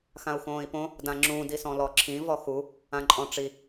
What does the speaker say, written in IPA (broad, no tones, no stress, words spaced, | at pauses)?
xãu̯xõːi̯põ | dãŋ͡ǁũ disɔ̃lɔǁʰĩ vɔxu | ãǃʼɔ̃ʈ͡ʂi